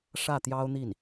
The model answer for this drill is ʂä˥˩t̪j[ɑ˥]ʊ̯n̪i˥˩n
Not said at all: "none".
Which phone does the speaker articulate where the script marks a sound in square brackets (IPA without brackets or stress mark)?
ɑ˥